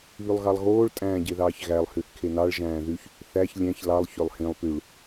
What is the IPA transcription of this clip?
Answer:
β y lˠ ɣ ɑ lˠ ɣ oː ɭ tʼ æ̃ː ɟ e ð ɑː ç ɣ æ lˠ h y θ kʰ e n ɑ ɭ ʒ æ̃ː ð y ç | θ æ ç lʲ æ̃ ç l ɑ lˠ ç ø lˠ h ĩ lˠ p y ɭ

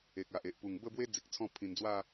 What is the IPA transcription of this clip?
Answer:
e˨ k̚ a˨ ʔ e˨ ʔ p u˨˩ ŋ b ə˥˧ b w e˦ d͡z i˨ k̚ t͡sʰ ɔ̃˥˧ pʰ ĩ˨˩ n d͡z w a˥˧

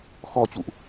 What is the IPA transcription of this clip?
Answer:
x ɔ˨˩ t͡ɕ ṵ˧˨ ʔ

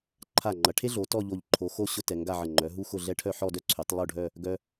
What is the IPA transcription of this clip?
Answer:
ǃʰ a˧˩ ŋ͡ǃ ɐ˩˧ ʈʰ e˥ ɮ o˩˧ t ɔ˥˧ ʎ o˧˩ ʎ ǃʰ o˩˧ x o˥˧ ɕ ʊ˥ t ɛ˩˧ ŋ ɡ a˥˧ ʕ ə˧˩ ŋ͡ǃ œ˩˧ ɦ u˥ x ʊ˥˧ ɮ ɛ˥ ʈʰ œ˥˧ ħ ɔ˥˧ d œ˥ ǀʰ y˩˧ tˤ lˠ o˥˧ ɖʱ œ˥˧ | ɡ œ˧

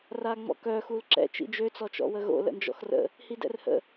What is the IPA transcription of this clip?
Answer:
r a ŋ͡m ɔ̰ k œ x u l ǁ ɛ̰ t͡ʃ ḭ d͡ʒ ø t͡s ɔ t͡ʃ ɔ̰ w ə ɣ o̰ l ə̰ n d͡ʒ ɔ̰ x r ə̰ | h i d ɛ̰ r h ə̰

